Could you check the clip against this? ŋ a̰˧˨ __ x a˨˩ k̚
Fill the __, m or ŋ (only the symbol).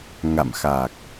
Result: m